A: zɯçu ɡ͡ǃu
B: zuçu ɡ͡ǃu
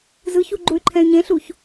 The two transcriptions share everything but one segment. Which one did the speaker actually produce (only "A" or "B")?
A